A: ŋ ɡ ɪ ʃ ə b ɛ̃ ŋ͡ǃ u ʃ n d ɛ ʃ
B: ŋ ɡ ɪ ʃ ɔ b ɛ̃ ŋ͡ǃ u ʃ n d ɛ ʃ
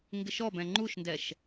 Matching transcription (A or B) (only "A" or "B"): B